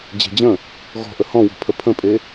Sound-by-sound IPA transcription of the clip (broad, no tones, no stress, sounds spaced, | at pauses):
d͡ʑ e̤ d͡ʑ ə̃ | ɣ ɔ̤ ʔ ə h ɔ̃ w ɔ̤ pʰ ə pʰ ə̃ pʼ e